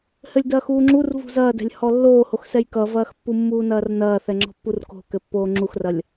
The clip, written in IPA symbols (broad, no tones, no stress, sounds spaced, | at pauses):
h ɘ lʲ d ɐː x uː ŋ͡ǁ u r v ṳ z ɐː d ɛ̤ lʲ h ɔ lː oː h o x s ɛ j k ʌ v ɐː x pː u mː uː n ɐː r n ɐː θ ɛ ŋ͡ǁ ɔ̤ pː u r k o̤ k ɘ pː oː ŋ͡ǁ u x r ɐ lʲ